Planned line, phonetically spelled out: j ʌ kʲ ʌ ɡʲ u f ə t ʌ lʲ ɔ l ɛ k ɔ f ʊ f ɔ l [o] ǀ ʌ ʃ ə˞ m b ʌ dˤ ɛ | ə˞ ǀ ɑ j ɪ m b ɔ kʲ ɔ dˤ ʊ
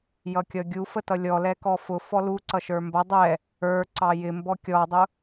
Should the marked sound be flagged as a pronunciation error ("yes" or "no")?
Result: yes